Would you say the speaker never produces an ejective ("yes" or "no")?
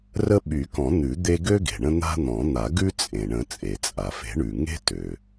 no